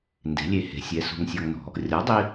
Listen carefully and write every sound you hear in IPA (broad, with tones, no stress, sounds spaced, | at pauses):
n d e̤˩˥ lʲ e˧ h e̤˩˥ sʲ ɛ˩˥ s ṳ˧ ŋ sʲ ɔ˧ ŋ n ɔ̤˩˥ | rʲ ɔ˩˥ dˤ i˧